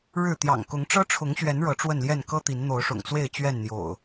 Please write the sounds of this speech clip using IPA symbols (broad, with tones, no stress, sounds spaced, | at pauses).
ɻ ɻ̩˥˨ t̪ j ɑ̰˨˩ ŋ k ʊ˨˦ ŋ ʈ͡ʂ ɤ˦ ʈ͡ʂʰ ʊ˨˦ ŋ ɕ ɥ ɛ˨˦ n ɻ ɤ˨˦ ʈ͡ʂ w ə˥˨ n l j ɛ˥˨ n k ɤ˦ t̪ i˨˦ n n̪ o˨˦ ʊ̯ ʂ ʊ̰˨˩ ŋ t͡s w e˥˨ ɪ̯ t͡ɕ ɥ ɛ˥˨ n n̪ j o̰˨˩ ʊ̯